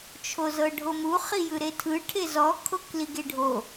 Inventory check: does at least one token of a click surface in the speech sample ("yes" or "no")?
no